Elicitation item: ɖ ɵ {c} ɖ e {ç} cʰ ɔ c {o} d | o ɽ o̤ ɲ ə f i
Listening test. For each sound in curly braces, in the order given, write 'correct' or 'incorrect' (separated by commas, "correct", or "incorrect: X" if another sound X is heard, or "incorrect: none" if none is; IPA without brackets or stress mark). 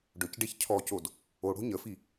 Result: correct, correct, correct